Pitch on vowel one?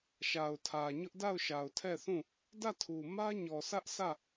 low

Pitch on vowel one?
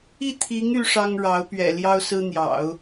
falling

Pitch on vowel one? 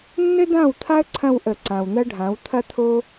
high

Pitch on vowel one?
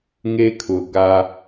high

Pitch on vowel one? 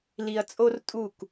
low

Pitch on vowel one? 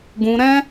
high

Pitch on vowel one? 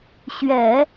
low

